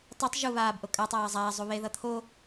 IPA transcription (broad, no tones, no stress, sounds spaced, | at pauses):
tˤ e tˤ ʒ u β aː b ʔ o kʼ a tˤ aː zˤ aː zˤ u β e ð ʌ t̪ʰ o